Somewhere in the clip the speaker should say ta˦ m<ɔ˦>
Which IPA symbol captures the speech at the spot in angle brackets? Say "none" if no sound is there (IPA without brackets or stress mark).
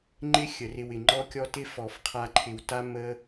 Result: ə˦